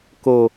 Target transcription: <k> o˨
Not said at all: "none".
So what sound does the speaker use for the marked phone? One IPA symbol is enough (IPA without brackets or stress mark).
k